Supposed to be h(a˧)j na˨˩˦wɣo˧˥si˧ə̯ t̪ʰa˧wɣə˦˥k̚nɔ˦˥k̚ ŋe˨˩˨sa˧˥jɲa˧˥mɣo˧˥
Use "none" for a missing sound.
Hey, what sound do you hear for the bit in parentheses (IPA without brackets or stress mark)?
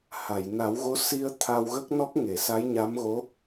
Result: a˨˩˨